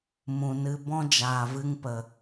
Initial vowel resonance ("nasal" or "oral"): nasal